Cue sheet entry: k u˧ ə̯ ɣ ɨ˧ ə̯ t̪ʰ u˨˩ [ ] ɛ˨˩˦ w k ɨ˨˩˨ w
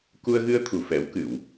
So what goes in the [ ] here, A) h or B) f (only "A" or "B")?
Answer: B